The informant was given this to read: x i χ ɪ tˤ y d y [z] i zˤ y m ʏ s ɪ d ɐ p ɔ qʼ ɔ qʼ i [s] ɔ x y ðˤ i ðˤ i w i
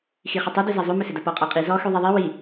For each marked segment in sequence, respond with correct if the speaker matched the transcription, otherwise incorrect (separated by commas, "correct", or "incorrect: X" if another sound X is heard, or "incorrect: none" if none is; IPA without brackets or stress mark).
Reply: correct, incorrect: z